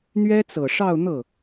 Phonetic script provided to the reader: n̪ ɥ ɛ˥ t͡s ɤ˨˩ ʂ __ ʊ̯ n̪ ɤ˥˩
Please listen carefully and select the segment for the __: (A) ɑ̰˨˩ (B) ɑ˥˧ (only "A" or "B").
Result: B